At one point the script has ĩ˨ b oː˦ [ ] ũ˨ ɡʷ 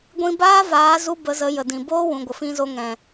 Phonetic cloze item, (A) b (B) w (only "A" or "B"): B